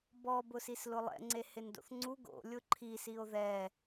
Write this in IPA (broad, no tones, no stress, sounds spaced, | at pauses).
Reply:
b ɔ b ʊ s i s l ʊ lˠ ɛ̰ ŋ͡ǀ e h ɪ n d o̰ θ ŋ͡ǀ u ɡ o̰ lʲ ʊ ǃʰ i s i o̯ ð ɛ